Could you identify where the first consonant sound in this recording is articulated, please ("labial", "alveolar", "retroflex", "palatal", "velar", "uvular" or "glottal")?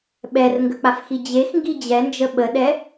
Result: labial